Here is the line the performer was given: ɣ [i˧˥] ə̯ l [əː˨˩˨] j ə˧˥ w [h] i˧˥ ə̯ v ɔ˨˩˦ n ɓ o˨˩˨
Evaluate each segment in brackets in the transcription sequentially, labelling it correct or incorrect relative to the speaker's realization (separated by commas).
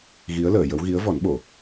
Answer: correct, correct, incorrect